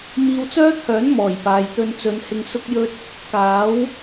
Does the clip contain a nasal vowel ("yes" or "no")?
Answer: no